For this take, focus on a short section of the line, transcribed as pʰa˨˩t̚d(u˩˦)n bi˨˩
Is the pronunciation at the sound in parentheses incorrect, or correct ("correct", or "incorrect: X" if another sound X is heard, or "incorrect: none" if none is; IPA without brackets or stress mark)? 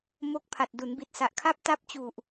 correct